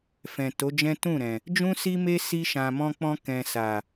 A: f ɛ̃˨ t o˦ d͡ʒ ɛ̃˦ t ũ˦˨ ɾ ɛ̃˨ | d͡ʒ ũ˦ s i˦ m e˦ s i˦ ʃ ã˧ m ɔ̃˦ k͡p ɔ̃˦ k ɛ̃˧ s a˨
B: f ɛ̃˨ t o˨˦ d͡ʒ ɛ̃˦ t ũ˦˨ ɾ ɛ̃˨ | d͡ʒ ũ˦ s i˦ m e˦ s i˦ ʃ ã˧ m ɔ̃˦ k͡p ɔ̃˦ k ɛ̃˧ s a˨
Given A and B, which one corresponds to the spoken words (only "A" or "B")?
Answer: B